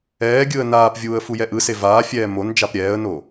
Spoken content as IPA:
ɛː ɡʲ ɯ ə̯ n aː p vʲ uː ə̯ f u j ɛ ʔ ɯ s e v aː fʲ ɛː m o n d͡ʒ a p ɾʲ ɛː ə̯ n o

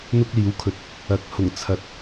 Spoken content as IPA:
n̪ ʊ˥ k̚ l iː˨˥ w kʰ ɵ˨ t̚ | ɐ˨˥ k̚ h ʊ˨˩ ŋ t͡sʰ ɐ˨˥ t̚

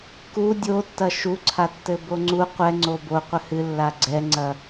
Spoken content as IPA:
k u dʲ o tː ɐ ʃ u ǀʰ a tː ɘ b o ŋ͡ǀ u qʷ ɛ ŋ͡ǀ o b o qʷ ɘ h ɨ lː a ɡ͡ǀ ɛ ŋ͡ǀ ɐ

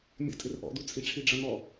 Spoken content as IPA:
mʲ ə̰ tʼ ɪ r ʔ ɔ̰ d u t͡sʼ i ʈ͡ʂʰ i ɖ͡ʐ ʌ n ɔ

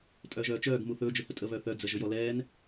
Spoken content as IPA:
tʼ œː ʒ œː t͡ʃ œː ɡ m u θ ɵː d͡ʒ ʊ h ə tʼ ə β œ θ œ d͡z ə ʒ ʊ j ɔ l ɛː n

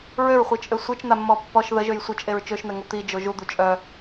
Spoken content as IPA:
ɹ ø ɹ χʷ e t͡ʃʼ ø sʷ e t͡ʃ n̪ a mː ɔ pː ɔ ʃ ð ə ʒ ø j sʷ œ t͡ʃʼ e ɹ t͡ʃ ø ʃ n̪ ɛ ŋ o t̪ i d͡ʒ o ʒ u d̪ u t͡ʃʼ œ

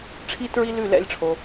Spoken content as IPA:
ʈ͡ʂʰ i˥ t ɹ i˥ l ʉ˥˨ l ɛ̰˥˨ lʲ ʈ͡ʂʰ o˨

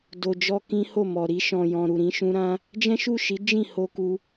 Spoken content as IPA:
d o˨ d͡ʒ ɔ˧ k ĩ˦ h o˦˨ m ɔ˨ ɾ i˧ ʃ ɔ̃˨ j ɔ̃˨ ɾ u˨ ɾ ĩ˧ ʃ ũ˦ ɾ ã˦ | d͡ʒ ɛ̃˦ ʃ u˦˨ ʃ i˨˦ d͡ʒ ĩ˦˨ h o˧ k u˧

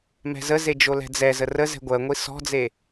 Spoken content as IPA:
m ɛ̤ z ə z e d͡ʒ o l ɛ̤ d͡z ɛ z ə r ə z ɛ̤ ɡʷ ɜ ŋʷ i s ɔ̤ d͡z e

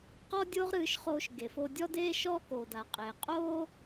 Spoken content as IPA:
q ɔ˥ dʲ oː˥ ʁ ɾ ɨː˧ ʃ χ oː˧ ʃ ɡ e˩ f o˧ dʲ ɔ˥ d eː˥ ʃ ɔː˥ k oː˩ d a˩ qʼ eː˩ qʼ oː˥

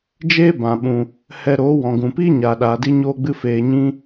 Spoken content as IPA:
d͡ʒ eː˦ b ã˨ ɓ ũ˨ | h ɛ˧ ɾ oː˨˦ w ɔ̃˨ ɡ ũ˨ p i˦ ɲ aː˨ ɗ aː˨ d i˦ ɲ oː˧ ɡ͡b ɨ˧ f eː˨ ɲ ĩ˧

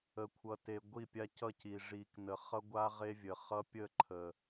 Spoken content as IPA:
ə˨ kʷʰ ʌ˨ t e˨ ɡʷ i˦˨ pʲ a˦ c ʌ˦˨ c i˨ ʐ i˨ k n ə˨ χ ʌ˦ ɡʷ a˦ ʁ e˦ vʲ ə˨ χ ʌ˦ pʲ ə˦˨ ǃʰ ə˨

